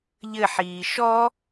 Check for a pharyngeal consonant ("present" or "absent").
present